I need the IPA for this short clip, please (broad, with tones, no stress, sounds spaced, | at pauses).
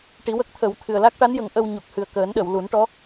ʈ i˨˩˦ w ə˦˥ k̚ t̪ʰ ə˨˩˦ w t̪ʰ ɨ˨˩ ə̯ l a˦˥ k̚ ʈ a˧˥ n j ə˨˩˦ ŋ ʔ ə˧ w ɲ u˨˩ k̚ h ɨ˨˩ ə̯ k əː˨˩˦ n ɗ ə˨˩˨ w l u˨˩˦ n ʈ ɔ˧˥